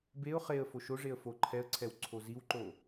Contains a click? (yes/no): yes